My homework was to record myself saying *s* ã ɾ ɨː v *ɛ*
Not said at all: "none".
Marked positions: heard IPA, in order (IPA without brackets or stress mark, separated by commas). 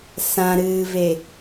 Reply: s, e